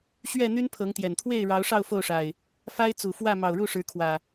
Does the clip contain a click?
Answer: no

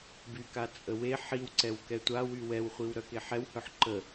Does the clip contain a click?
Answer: yes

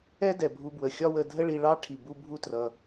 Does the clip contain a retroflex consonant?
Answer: yes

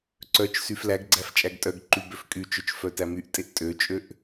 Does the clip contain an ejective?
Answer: yes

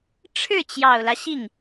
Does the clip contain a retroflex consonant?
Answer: yes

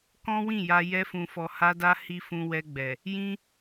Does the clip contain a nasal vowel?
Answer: yes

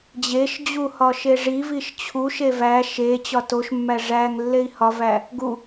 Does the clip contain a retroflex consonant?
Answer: yes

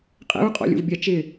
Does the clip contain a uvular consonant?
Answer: yes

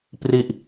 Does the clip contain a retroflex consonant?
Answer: no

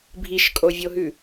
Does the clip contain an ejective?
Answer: yes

